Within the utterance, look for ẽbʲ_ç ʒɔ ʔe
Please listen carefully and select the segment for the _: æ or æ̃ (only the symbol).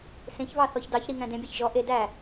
æ